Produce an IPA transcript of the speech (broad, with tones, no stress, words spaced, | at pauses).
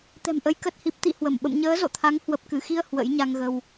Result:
t̪ɛ̤˨˩mʔə˨˦j kə˨˩t̚hi˨˩p̚ t̪ḭ˧˨ hwə˧˩m ɓə̰˧˨mɲəː˨˦zo̰˧˨t̪ʰa˨˦ŋ hwə˨˩p̚kɨ˧˩xi˧ə̯ hwə̰˧˥jɲa˧ŋɣə˧w